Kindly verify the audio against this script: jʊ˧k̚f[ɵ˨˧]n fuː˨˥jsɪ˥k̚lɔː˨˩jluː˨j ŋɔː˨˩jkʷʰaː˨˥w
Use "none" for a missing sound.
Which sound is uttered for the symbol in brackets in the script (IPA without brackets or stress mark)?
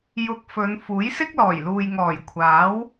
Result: ɵ˨˧